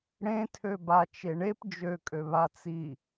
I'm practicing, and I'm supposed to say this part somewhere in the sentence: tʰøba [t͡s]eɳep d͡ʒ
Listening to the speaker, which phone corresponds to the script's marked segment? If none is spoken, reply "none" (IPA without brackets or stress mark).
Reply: t͡ʃ